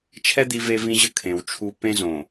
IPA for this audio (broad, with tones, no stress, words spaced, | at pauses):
t͡ʃʰɛ˦ d̪i˦ve˦vĩ˦ʑə˦ kʰẽ˨wt͡ʃʰu˦ pẽ˦zõ˨